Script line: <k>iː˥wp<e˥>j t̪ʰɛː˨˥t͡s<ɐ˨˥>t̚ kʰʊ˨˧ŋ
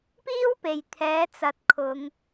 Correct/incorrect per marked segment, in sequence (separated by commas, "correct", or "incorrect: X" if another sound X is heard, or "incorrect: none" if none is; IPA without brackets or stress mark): incorrect: p, incorrect: e˨, correct